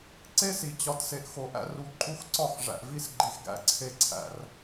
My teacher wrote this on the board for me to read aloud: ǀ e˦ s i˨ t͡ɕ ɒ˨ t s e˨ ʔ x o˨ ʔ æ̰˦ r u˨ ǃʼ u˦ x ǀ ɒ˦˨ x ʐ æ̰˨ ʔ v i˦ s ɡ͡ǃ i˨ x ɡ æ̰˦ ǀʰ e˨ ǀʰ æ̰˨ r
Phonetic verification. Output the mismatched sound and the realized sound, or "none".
none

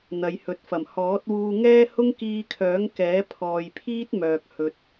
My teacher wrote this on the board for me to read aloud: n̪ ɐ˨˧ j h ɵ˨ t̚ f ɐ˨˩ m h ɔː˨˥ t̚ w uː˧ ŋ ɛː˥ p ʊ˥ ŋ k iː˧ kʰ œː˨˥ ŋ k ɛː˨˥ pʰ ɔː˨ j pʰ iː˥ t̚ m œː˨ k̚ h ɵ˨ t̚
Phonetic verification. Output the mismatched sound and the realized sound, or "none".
p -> h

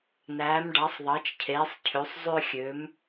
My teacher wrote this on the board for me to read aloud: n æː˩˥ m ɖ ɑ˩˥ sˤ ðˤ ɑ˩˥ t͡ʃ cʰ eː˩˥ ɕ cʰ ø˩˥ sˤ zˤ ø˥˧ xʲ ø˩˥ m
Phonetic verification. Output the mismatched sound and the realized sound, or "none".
ɕ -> sˤ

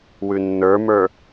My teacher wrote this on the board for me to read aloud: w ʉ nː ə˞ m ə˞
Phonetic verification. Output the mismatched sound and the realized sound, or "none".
none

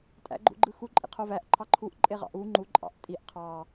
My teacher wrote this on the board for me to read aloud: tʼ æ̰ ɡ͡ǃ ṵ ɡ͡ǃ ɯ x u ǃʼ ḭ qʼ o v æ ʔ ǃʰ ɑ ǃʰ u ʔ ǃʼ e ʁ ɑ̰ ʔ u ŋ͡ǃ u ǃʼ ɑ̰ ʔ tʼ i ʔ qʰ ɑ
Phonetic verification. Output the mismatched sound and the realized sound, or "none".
qʼ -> qʰ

